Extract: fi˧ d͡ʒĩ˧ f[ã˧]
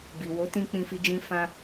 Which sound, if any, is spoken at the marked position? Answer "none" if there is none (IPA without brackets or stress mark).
ã˧